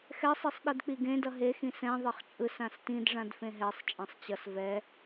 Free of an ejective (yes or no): no